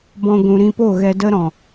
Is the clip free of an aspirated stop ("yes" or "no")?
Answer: yes